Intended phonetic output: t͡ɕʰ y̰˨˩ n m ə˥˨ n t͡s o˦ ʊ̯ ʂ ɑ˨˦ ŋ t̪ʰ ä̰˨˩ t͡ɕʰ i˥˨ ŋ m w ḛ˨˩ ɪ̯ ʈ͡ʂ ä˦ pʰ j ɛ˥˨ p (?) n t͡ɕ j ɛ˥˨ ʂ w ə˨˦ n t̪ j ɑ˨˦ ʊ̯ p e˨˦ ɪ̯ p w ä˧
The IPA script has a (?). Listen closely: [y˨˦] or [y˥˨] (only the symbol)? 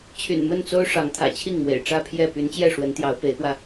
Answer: y˨˦